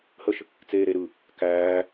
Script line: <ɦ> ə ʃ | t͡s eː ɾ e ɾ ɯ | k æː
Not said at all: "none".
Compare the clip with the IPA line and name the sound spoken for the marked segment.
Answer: h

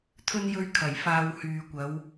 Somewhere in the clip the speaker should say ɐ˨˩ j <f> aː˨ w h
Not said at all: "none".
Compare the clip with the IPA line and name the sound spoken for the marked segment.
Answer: f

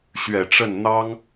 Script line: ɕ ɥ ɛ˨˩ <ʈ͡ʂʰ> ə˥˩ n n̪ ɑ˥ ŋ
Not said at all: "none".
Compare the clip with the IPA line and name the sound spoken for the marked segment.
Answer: ʈ͡ʂ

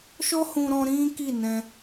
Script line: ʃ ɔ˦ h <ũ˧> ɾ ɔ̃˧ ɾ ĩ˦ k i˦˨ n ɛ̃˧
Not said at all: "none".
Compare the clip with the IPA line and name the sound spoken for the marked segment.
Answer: ũ˧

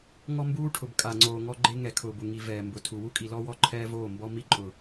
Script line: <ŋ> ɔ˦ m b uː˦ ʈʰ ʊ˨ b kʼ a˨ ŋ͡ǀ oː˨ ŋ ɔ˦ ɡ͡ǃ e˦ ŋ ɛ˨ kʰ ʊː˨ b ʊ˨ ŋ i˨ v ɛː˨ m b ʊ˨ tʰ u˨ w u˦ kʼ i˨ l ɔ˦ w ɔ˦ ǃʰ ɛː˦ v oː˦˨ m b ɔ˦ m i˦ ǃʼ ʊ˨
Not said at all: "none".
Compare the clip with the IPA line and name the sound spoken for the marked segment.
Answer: ŋ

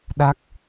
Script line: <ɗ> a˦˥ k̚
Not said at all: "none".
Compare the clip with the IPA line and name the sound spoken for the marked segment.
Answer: ɗ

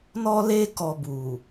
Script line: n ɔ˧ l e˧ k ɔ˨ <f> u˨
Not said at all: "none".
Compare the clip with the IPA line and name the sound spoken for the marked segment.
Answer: b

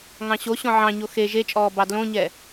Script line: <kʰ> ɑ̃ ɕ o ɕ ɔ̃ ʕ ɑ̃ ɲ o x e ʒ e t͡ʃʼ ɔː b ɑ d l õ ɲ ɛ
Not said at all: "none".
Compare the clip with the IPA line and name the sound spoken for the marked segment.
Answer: ŋ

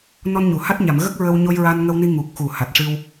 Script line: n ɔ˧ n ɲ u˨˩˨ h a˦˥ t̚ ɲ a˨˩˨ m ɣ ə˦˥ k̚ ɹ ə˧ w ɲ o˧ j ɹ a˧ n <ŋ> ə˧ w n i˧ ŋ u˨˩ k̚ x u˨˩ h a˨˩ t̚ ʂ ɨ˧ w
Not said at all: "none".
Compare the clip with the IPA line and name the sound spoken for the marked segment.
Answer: ŋ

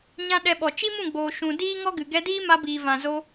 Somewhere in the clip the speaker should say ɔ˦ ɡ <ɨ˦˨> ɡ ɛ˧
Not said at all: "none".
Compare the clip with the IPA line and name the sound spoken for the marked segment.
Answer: ɨ˨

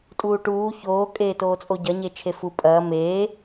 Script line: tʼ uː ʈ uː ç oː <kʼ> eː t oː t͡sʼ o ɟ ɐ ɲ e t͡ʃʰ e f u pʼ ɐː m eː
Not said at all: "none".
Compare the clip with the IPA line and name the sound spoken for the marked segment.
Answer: kʼ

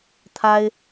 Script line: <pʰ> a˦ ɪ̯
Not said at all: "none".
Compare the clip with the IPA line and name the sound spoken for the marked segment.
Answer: t̪ʰ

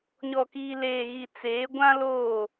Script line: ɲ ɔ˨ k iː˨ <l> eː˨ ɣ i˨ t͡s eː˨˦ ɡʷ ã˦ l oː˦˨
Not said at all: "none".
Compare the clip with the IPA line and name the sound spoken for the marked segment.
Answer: l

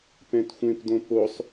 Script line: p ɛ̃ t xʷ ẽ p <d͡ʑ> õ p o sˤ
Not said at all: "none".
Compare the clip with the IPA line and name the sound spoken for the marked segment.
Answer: d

